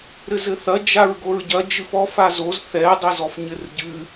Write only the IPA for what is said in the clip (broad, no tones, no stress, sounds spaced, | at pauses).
ɾ ɘ z ɘ θ ɐ d͡ʒ a ɹ ɡ o ɹ ɟ ɐ d͡ʒ ɨ f ɔ f a z o z θ ɛ dˤ ɘ z ɔ f ɲ ɘ r ɟ ɨ